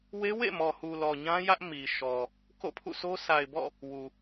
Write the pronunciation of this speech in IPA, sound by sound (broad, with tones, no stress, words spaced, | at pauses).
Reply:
we˦wḛ˦˨mɔ˨hu˨ lɔ˨ɲã˦ jä˦ʔ mi˨ ʃɔ˨ | ko̰˦˨pʰṵ˦˨sʰo˦ sʰa˨ɪ̯bɔ̰˦˨ | wu˨